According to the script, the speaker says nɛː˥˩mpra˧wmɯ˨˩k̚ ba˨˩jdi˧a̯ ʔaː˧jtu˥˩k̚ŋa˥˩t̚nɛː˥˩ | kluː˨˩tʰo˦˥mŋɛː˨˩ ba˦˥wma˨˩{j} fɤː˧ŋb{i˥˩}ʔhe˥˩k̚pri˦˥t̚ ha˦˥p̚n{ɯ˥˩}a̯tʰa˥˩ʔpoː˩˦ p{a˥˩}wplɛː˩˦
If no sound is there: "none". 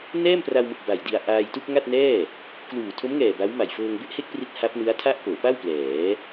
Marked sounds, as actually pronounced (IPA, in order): j, e˥˩, ɯ˦˥, a˥˩

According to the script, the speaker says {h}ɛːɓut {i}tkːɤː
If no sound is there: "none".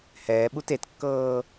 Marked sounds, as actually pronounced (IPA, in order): h, e

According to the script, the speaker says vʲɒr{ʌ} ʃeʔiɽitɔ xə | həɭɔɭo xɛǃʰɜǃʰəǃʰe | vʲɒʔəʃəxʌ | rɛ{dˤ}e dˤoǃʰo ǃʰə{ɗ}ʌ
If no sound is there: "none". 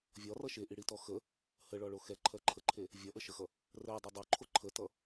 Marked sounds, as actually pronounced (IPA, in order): ʌ, dˤ, t

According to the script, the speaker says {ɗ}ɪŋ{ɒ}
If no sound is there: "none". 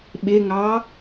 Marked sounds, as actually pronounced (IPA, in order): ɓ, ɑ

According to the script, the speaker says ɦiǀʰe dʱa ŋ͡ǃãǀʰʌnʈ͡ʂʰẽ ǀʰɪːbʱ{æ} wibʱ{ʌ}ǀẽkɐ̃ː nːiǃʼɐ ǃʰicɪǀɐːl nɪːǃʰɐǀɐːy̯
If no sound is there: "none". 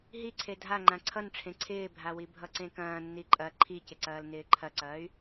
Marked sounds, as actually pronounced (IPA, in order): a, ʌ

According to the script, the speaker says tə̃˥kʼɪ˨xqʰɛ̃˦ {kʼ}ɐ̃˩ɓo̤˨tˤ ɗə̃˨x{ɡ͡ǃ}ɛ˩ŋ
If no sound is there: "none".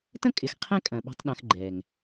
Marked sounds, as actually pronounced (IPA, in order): kʼ, ɡ͡ǃ

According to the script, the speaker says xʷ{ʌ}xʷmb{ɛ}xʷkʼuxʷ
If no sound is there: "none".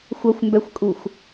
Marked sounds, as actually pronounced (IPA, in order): ʌ, ɛ

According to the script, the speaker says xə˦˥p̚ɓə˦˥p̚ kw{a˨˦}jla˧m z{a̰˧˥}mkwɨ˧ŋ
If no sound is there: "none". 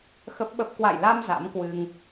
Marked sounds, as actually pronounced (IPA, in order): a̰˧˨, a̰˧˥

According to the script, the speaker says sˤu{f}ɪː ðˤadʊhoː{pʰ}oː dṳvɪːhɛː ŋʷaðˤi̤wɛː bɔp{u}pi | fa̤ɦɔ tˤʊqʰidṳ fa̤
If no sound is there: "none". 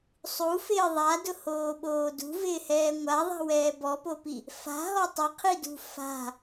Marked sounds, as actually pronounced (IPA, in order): f, ɓ, o

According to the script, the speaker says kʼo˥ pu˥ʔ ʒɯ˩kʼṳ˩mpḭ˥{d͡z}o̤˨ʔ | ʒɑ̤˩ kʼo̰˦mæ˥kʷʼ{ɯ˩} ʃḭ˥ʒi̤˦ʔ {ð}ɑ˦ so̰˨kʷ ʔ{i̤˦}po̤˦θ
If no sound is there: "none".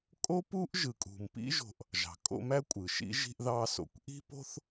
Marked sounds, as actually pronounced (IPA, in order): ʒ, ɯ˩, ð, i̤˦

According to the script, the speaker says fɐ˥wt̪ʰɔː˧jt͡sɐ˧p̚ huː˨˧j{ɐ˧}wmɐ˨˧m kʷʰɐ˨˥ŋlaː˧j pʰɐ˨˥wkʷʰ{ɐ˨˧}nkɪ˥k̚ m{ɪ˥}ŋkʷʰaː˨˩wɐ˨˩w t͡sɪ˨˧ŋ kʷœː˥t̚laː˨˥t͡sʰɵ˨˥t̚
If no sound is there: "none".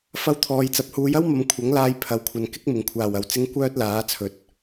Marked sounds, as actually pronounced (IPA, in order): ɐ˥, ɐ˨˧, ɪ˨˩

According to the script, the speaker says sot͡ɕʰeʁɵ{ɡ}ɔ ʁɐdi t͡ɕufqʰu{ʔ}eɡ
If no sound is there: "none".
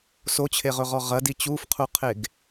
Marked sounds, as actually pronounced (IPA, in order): ʁ, qʰ

